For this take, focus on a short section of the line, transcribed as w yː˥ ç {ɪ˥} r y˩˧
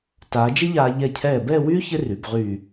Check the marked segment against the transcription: correct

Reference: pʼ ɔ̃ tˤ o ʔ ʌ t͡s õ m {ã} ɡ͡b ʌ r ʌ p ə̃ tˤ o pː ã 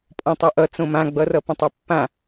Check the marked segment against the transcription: correct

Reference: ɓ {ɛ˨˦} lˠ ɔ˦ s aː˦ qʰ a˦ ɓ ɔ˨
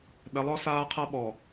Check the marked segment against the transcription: correct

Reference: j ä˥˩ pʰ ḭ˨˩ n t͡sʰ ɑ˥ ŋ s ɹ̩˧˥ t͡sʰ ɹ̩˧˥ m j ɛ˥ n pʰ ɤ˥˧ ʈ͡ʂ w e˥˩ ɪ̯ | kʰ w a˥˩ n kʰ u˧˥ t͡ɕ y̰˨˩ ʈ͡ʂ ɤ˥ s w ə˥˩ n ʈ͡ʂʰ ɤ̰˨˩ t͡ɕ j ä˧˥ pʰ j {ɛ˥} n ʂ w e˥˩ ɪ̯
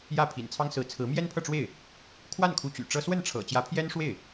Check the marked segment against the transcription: correct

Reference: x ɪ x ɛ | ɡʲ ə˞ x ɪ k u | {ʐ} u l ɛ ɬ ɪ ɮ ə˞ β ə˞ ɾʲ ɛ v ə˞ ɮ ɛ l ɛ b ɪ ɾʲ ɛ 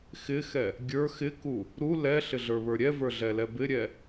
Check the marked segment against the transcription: incorrect: ɾ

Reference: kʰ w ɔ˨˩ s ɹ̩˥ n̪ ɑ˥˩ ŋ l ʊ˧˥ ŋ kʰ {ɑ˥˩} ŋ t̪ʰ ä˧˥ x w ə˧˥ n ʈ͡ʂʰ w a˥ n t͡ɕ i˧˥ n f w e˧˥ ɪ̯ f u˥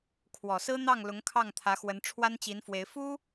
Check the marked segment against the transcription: correct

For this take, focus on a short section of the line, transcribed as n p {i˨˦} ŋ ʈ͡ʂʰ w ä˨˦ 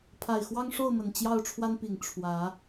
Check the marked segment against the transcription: incorrect: i˨˩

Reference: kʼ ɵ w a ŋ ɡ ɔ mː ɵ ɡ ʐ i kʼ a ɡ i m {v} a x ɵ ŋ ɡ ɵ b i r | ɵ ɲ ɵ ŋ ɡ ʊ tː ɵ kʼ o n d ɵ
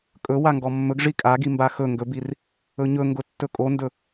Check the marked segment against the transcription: incorrect: b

